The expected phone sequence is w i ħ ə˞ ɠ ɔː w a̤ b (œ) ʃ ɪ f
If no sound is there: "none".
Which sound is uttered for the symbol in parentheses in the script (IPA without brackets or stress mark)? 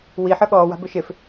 ɵ